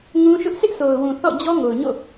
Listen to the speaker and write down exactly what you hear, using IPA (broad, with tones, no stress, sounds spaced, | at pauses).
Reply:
ŋ ũ˦ ʃ ʊ˦ ʔ s ɪ˦ ʔ s o˨ ʊ̯ w ũ˨ θ ɔ̰˦˨ d͡ʑ ɔ˦ ŋ o˨ ʊ̯ ɲ o̰˦˨